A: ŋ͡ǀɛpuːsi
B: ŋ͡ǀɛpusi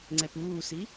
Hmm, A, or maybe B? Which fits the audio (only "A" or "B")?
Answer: A